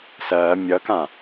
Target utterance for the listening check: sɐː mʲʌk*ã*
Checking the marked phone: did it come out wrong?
no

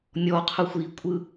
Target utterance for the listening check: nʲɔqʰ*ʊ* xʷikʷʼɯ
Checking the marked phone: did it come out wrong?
no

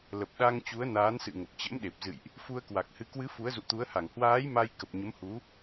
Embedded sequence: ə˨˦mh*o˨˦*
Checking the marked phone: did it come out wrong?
yes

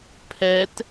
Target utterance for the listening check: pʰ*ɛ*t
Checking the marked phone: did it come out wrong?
no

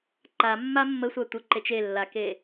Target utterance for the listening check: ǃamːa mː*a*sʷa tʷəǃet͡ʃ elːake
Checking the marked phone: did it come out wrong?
yes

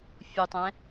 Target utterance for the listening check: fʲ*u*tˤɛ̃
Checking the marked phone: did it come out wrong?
no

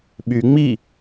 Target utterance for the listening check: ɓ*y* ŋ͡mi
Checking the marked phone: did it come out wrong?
no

